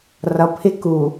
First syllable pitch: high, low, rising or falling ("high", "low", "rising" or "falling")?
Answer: low